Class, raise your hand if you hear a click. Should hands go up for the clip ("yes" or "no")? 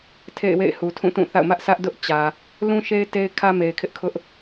no